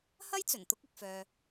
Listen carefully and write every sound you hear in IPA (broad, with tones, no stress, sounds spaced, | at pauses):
h ɐ˥ j t͡s ɵ˨˩ n t̪ ʊ˥ k̚ ɪ˨ k̚ f œː˨